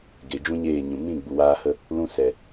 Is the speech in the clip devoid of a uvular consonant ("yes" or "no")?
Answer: yes